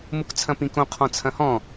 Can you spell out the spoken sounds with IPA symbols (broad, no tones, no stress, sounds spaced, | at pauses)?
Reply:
m u k t͡sʰ ɐ̃ p ĩ k õ qʰ ɔ̃ t͡sʰ ɐ̃ h ɔ̃